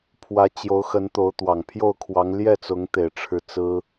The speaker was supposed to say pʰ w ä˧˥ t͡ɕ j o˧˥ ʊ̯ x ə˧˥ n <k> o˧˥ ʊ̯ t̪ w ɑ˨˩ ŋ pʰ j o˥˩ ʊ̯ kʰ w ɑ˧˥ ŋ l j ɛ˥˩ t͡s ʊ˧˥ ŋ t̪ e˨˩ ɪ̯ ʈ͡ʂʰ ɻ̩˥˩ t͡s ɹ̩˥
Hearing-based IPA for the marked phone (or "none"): t̪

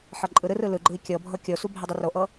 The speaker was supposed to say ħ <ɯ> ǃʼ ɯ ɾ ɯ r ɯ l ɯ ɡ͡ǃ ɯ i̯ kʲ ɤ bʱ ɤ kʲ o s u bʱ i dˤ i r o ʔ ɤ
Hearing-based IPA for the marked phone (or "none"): ɤ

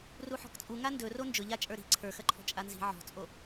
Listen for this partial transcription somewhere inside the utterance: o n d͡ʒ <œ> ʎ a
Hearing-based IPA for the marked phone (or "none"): ɵ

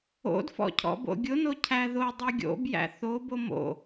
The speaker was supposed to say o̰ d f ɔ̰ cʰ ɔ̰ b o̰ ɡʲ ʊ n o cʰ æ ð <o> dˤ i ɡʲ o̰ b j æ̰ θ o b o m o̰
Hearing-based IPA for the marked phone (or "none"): o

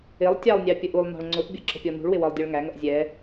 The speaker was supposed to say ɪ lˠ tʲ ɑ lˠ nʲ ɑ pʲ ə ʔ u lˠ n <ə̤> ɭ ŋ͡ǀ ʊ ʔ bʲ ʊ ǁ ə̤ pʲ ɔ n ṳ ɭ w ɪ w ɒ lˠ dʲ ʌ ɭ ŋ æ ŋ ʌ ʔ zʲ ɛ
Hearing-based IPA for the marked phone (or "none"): ɔ̤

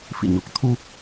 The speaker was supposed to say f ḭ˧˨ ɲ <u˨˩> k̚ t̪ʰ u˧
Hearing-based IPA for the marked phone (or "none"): u˨˩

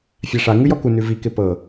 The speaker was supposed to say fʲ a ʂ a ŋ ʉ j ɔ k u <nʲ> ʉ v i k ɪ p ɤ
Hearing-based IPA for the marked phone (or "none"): n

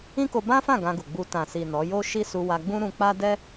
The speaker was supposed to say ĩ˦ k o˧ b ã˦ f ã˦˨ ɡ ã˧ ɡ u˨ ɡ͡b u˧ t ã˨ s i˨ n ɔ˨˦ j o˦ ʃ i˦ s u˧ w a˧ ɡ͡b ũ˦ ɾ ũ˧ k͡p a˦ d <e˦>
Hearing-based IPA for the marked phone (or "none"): ɛ˦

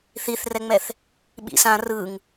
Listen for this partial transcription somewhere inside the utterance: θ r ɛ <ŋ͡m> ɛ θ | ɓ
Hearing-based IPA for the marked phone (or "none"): ŋ͡m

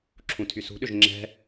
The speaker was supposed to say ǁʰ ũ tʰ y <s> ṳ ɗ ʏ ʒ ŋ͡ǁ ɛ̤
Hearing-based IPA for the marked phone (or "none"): s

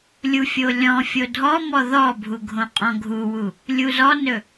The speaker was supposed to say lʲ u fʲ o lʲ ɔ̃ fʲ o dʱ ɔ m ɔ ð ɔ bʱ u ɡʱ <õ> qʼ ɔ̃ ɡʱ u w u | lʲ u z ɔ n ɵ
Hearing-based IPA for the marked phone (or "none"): õ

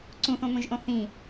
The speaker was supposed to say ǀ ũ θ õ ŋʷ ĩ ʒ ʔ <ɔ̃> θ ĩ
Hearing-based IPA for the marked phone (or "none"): õ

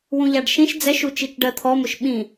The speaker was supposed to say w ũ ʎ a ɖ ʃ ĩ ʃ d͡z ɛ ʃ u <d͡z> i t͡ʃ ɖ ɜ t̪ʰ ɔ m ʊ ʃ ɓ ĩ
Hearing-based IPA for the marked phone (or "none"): t͡ʃ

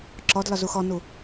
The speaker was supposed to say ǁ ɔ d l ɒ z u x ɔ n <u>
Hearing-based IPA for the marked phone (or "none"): u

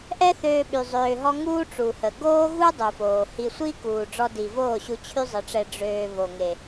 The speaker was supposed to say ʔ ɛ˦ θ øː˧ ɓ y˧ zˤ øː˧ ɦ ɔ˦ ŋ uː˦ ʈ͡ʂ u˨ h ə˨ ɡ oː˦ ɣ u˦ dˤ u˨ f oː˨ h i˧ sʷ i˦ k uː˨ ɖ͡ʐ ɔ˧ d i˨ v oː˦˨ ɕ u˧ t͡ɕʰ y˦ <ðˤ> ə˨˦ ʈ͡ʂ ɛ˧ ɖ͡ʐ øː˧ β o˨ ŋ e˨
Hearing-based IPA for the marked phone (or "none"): zˤ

